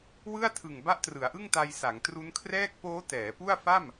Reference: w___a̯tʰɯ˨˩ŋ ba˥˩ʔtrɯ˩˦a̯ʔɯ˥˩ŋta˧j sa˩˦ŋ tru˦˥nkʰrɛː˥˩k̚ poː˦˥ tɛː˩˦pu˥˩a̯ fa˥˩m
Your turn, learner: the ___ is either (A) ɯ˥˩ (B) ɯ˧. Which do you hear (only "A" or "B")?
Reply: A